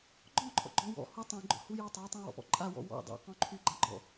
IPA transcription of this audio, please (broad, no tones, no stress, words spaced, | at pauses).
ɡ͡ǃɔ̃ ǃʰɔ̰ɡ͡ǃɔ̃wɔ̰ hu tˤũ ɡ͡ǃɔ̰hujutˤa tˤũwɔ̰pɔ̰ǃʼa wɔ̰wɔ̰ dˤḛ qɔ̃ǃʰyɡ͡ǃaɡ͡ǃɔ̰